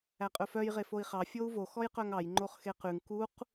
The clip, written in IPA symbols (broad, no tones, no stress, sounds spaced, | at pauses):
æ qʼ ɵ f œ j ʁ e f o i̯ χ ɑ fʲ o u̯ v o x ɔ j q œ ŋ ɑ j ŋ͡ǃ o χ x e q ʉ ŋ k u q